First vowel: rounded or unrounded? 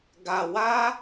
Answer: unrounded